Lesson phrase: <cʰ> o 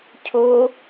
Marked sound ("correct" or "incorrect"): correct